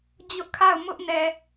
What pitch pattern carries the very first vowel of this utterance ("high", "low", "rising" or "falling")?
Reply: high